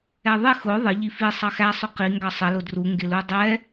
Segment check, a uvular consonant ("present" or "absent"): present